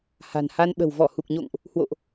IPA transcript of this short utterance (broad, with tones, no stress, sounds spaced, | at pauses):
h a̤˨˩ n h a˧ n ɓ ə̤˨˩ w v ɔ˧˩ h u˨˩ k̚ ɲ o̰˧˨ ŋ ʔ | h w o̰˧˨ ʔ